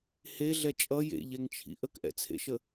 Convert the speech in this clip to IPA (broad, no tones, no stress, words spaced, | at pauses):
heɮɛ t͡ʃʼʌ jḛʎɛŋt͡ʃʰḭ ʔəkʔɛ̰t͡sʰḛʃə